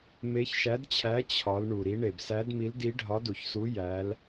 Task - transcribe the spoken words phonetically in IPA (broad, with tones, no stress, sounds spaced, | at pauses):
m e˨˦ ç ʃ æ˨˦ d t͡ɕʰ æ˨˦ t͡ɕʰ ɒ˨˦ l ɳ u˩ ɾ i˨˦ ɳ e˩ b s æ˨˦ d m i˨˦ l d i˨˦ ɖʱ ɒ˨˦ d u˩ ç s u˨˦ j æ˨˦ l